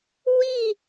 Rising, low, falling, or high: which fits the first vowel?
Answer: falling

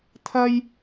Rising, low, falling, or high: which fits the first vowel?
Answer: high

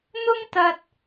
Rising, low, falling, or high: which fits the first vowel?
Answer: high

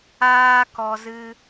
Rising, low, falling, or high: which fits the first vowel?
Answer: high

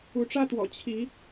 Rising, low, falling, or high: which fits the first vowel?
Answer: rising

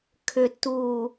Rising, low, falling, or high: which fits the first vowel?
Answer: low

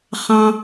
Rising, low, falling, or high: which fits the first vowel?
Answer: low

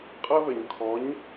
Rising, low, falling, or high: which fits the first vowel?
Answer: high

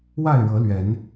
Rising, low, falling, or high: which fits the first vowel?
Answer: falling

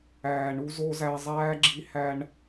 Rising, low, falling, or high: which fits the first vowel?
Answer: low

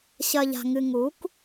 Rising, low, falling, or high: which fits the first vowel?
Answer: low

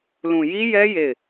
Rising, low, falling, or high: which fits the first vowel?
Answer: low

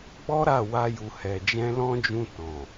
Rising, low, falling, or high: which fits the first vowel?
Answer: high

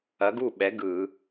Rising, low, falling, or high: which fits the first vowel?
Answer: rising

